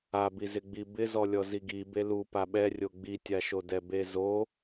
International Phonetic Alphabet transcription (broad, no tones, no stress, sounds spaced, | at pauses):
a b i z ɪ ɡ͡b i b ɪ z ɔ lʲ ɔ z i ɡ i b e l u p a ɓ ɛ rʲ o ɡ͡b i tʲ a ʃ o d ɛ b e z o